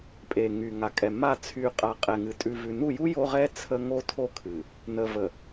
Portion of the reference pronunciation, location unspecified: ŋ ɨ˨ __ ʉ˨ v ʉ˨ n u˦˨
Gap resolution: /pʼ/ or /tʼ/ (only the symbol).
tʼ